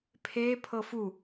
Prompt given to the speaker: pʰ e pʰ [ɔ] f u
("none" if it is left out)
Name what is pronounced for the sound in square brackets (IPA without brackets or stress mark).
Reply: ɤ